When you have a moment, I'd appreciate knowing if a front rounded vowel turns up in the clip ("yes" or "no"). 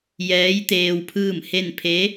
no